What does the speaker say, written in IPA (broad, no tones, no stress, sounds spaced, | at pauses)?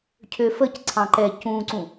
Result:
cʰ ø f ə c ǀʰ ɑ̃ ǃ ɛ c ũ ǀ ũ